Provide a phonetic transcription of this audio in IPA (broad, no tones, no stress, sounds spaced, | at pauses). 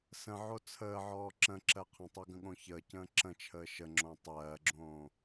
s ə̃ ʕ o t͡sʰ əː ʕ ɔː ǁ ə̃ ǁ ɜ qʰ ə̃ tˤ o ɡ ə̃ ɠ õ ç əː c ə̃ː ǁ ə̃ t͡ʃʰ əː ʃ ə ŋ͡ǁ õ tˤ ɜː ɡ͡ǁ õː